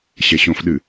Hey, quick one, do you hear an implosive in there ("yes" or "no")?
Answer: yes